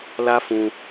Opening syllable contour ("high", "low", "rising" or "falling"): high